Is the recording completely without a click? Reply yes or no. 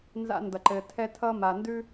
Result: no